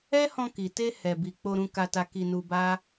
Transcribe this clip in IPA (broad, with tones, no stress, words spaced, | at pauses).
ɛ˦hɔ̃˧ki˨te˧ hɛ˨bi˨ k͡po˧ɾũ˧ka˧ta˧ ki˧nu˧ba˦